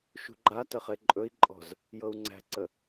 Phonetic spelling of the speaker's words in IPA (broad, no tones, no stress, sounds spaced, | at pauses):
ʃ ṳ ɡ͡ǃ a t ə χ e ǃʼ ɵ i̯ ǃʼ ɔ̤ z | j ɤ u̯ ŋ͡ǀ æ̤ ǀ ə